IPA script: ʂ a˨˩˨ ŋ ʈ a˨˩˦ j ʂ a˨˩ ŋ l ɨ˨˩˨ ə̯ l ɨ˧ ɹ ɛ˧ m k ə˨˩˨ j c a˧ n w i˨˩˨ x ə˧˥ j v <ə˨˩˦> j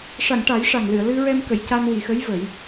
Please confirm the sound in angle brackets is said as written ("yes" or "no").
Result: yes